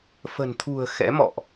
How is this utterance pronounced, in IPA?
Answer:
f ə̤˨˩ n t̪ʰ ṳ˨˩ ə̯ x ɛ̰˧˥ m ɔ̰˧˨ ʔ

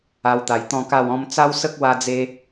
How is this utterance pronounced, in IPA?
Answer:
a˧ w t̪ a˨˩ j t̪ ɔ̃˥˧ k a˥˧ w ɔ̃˦ m t͡s a˦ w s ə˦ k̚ w a˧ d͡z e˧

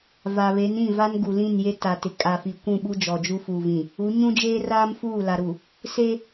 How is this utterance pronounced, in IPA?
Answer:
v a˨ β e˨˦ n ĩ˦˨ v a˦ n ɡ u˨ l ĩ˦˨ n j e˦ t a˨ t ɪ˨ kʼ a˨ f i˨ kʷ ũ˦˨ ɓ u˦ d͡ʒ ɔ˨ d͡ʒ u˦ f uː˨ v ĩ˨ | u˨˦ ɲ ũ˦ d͡ʒ eː˦ r aː˦ m f uː˦˨ l a˨ ɾ u˨ | s e˦

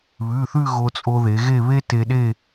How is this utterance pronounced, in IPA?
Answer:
β ʉ˩˧˩ θ ʉ˥˧ ɣ o˧ t͡sʼ o˧ ð e˩˧ ɣ e˥˧ β e˥ t e˧ ɗ e˥˧

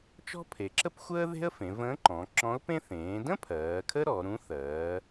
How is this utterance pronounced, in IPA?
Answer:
t͡ʃ ɔ̤˥ pʰ e˩˧ ǁ ə˥ p xʷ əː˥ ð e̤˥ ə̯ f ẽ˩˧ v ə̃ː˧˥ ǃ ɔ̃˩˧ ǁ ɔ̃˧˥ ʊ̯ p ẽ˥ θ ẽː˩˧ d ə̃˥ pʰ ɜː˩˧ kʰ ə˥ ɾ ɔ˩˧ ɾ ũ˧˥ θ ɜː˩˧

